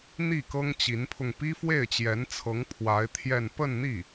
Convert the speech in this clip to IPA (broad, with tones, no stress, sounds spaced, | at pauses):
n̪ i˥˩ k ɤ˥ ŋ t͡ɕ i˧˥ n pʰ ʊ˧ ŋ p i˥ f w e˥˩ ɪ̯ t͡ɕ j ɛ˧˥ n t͡sʰ ɤ˧˥ ŋ pʰ w a˧˥ ɪ̯ t̪ʰ j ɛ˥˧ n p ə˥˧ n n̪ i˥˩